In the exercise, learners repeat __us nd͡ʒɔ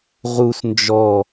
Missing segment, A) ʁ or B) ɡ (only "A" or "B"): A